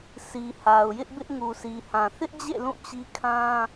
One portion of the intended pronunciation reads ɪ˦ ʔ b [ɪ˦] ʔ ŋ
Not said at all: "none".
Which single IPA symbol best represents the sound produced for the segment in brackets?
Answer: ɪ˦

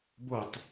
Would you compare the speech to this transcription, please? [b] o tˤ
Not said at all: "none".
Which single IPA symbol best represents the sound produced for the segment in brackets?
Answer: b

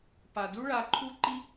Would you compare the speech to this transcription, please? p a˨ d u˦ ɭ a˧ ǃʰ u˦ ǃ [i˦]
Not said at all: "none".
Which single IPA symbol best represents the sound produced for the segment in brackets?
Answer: i˦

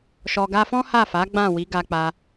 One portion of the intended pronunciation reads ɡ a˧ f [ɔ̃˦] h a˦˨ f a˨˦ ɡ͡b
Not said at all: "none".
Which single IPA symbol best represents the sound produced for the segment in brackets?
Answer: ɔ̃˦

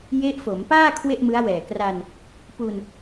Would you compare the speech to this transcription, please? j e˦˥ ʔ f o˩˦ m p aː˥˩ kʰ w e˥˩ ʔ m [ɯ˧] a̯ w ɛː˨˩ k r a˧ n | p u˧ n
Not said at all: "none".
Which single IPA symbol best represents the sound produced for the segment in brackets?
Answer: ɯ˦˥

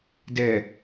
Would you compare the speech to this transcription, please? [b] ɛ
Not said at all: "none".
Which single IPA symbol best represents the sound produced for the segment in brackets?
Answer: d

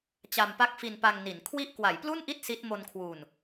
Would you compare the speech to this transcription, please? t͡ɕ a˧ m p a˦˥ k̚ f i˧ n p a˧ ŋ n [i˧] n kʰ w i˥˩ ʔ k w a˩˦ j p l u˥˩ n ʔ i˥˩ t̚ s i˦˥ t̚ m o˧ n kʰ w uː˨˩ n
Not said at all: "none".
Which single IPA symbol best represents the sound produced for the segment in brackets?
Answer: i˩˦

